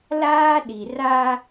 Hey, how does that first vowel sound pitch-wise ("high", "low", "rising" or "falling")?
high